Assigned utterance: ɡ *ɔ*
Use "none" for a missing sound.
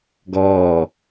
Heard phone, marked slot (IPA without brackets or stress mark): ɔː